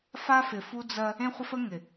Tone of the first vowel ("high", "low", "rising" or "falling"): high